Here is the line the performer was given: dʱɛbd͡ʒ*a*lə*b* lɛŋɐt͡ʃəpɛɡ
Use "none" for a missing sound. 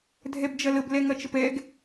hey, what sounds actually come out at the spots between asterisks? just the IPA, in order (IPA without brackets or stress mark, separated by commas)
ɐ, b